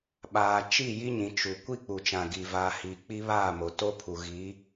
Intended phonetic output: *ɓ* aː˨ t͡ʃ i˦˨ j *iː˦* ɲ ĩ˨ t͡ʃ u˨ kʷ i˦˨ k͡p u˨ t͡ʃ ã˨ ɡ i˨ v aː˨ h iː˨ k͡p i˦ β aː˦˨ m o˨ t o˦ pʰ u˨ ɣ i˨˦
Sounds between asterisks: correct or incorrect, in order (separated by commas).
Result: correct, incorrect